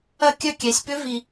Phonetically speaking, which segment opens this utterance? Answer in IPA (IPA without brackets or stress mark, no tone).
ɐ